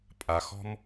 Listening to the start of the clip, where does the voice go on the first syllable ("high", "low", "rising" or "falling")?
low